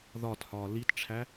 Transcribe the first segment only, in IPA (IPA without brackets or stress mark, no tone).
ð